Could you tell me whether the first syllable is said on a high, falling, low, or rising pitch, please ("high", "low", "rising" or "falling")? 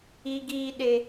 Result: high